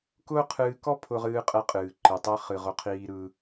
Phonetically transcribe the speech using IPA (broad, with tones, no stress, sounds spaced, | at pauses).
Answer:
k ʊː˦ qʰ ɨː˧ k ɔ˦ pʰ ʊ˧ ʁ ɨː˧ qʼ ɛ˧ qʼ ɨː˨ ǃ ɨ˨ tˤ ɛ˦ χ ɨ˨ ʁ ʊ˦ qʰ iː˧ ɾ ɯ˧